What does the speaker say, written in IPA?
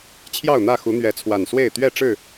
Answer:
t͡ɕʰ j ɑ˥˨ ʊ̯ n̪ ä˥˨ x u˨˦ n̪ ɥ ɛ˨˦ t͡sʰ w a˨˩ n s w e˥˨ ɪ̯ t̪ ɥ ɛ˥˨ ʈ͡ʂ ɻ̩˥˨

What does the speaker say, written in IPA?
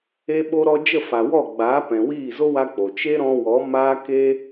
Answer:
e˧ ɓ o˧ ɾ ɔ˧ d͡ʒ ə˦˨ f a˨ w ɔ˦˨ ɡ͡b aː˨˦ p ɛ̃˨ w iː˦˨ z o˦ w a˧ k͡p o˨ t͡ʃ e˦ ɾ ɔ̃˧ w ɔ˨˦ m aː˦ k e˦

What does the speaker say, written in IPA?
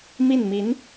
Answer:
m i˥˩ n m i˧˥ n

